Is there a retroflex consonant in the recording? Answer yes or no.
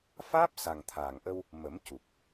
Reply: no